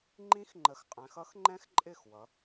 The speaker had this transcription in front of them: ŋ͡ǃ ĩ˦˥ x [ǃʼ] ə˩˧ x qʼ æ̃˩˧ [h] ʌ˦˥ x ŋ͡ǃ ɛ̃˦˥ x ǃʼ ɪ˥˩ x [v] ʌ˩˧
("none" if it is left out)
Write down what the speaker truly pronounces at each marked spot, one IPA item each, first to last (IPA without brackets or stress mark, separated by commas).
ŋ͡ǃ, x, w